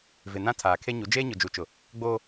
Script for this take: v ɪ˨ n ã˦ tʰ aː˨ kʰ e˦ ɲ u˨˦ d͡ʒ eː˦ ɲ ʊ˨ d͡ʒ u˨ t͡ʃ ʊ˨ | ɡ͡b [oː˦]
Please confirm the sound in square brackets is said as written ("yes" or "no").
yes